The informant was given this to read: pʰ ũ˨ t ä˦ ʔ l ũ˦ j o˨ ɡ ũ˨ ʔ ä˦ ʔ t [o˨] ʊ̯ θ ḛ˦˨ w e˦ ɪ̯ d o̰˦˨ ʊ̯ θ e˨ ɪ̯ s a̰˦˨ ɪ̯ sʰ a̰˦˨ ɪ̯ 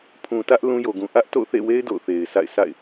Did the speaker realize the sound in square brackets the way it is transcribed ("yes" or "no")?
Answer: no